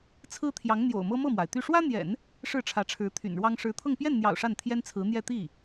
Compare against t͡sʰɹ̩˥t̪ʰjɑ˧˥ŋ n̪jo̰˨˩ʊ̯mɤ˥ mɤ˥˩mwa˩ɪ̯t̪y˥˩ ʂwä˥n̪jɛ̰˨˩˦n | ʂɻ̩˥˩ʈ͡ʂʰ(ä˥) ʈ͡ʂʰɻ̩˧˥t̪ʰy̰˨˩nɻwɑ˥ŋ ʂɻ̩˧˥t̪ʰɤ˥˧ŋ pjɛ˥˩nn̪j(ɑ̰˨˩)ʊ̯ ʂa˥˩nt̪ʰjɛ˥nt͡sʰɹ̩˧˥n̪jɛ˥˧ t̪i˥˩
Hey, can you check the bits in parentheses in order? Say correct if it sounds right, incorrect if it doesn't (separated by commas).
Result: incorrect, correct